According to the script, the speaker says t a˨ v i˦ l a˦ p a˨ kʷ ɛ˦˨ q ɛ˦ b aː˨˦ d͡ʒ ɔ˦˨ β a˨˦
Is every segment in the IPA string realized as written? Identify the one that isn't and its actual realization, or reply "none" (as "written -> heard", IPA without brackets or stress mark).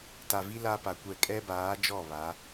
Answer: q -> kʼ